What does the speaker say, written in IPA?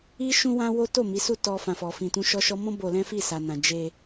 i˦ ʃ ũ˦ w ã˦ w o˦ t o˦˨ m i˨˦ s u˦˨ t ɔ˧ f ã˨ f ɔ˨ f ĩ˧ t ũ˦ ʃ ɔ˦ ʃ ɔ˦ m ɔ̃˦ b o˧ l ɛ̃˦ f i˦˨ s a˨ n ã˨ d͡ʒ e˧

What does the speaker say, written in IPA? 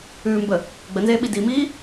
ʉː m b ə | ɡ͡b ə n z eː ɓ i d i m iː

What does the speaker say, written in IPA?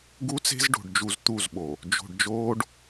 ɡ u˦ t͡s e̤˦ z ɖ o̤˨ ɖ d͡ʒ u˨ z t̪ u˦˨ z ɓ o˨ | d͡ʒ o̤˨ ɖ d͡ʒ oː˦ ɖ

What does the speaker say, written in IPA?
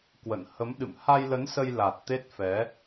k w ə̰˧˨ n h ə˨˦ m ɗ ɨ̰˧˨ m h a˧ j l ə˨˦ n s ə˧ j l a˨˩ t̚ t̪ e˦˥ t̚ f ɛ˨˦

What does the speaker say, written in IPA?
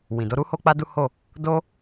w ĩ˨ d o˨˦ ɾ u˦ h o˦ k͡p a˦ d u˦ h o˦˨ | d o˦

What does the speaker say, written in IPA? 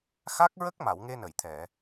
x a˦˥ k̚ ɹ ə˦˥ k̚ m a˨˩˨ w ŋ e˧ n ə˨˩˨ j t̪ʰ ɛ˨˩˨

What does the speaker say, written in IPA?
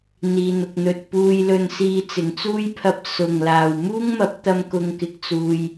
n̪ iː˨ n̪ ʊ˨ k̚ n̪ ɵ˧ t̚ p uː˧ j l ɵ˧ n s iː˧ t͡s ɪ˨˩ ŋ t͡s uː˥ j pʰ ɐ˧ p̚ s ʊ˨˩ ŋ l aː˨˩ w m uː˥ ŋ m ɐ˨˥ p̚ t̪ ɐ˥ m k ʊ˧ ŋ k ɪ˨˥ k̚ t͡s uː˧ j

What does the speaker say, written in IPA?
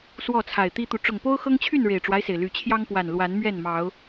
s w ɔ˥˨ t͡sʰ a˨˩ ɪ̯ t̪ i˦ t̪ u˨ ʈ͡ʂ ʊ˨˩ ŋ p o˦ ʊ̯ x ɤ˦ ŋ t͡ɕʰ y˥˨ n ɻ e˨˩ ɪ̯ ʈ͡ʂ w a˦ ɪ̯ s e˩ ɪ̯ l y˨˩ t͡ɕʰ j ɑ˦ ŋ p w a˨˩ n l w a˨˦ n m ɥ ɛ˥˨ n m ɑ˨˦ ʊ̯

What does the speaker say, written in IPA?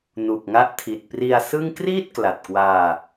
n u˨˩ k̚ ŋ a˦˥ ʔ tʰ i˨˩ t̚ p r i˧ a̯ s ɯ˥˩ ŋ k r iː˥˩ t̚ k l a˨˩ t̚ k w aː˧

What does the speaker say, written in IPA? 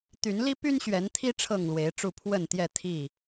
t̪ y˨˦ n l i˦ p y˦ n ɕ ɥ ɛ˨˦ n t̪ʰ i˦ ʈ͡ʂʰ ɤ˥˨ ŋ l w e˨˦ ɪ̯ ʈ͡ʂ u˥˨ pʰ w ə˥˨ n t̪ j ɛ˥˨ t̪ʰ i˥˨

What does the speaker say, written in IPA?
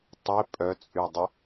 tˤ ɪ pʼ œ t͡sʼ y dˤ ɪ

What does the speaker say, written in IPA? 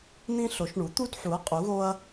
n̪ ĩ˦ ɬ o˩˥ ʃ ɳ u˩˥ t̪ u˦ d ħ u˩˥ ɐ̯ qʼ u˩˥ ɣ o˦ ɐ̯

